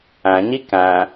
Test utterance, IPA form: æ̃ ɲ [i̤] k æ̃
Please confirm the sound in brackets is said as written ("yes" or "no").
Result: no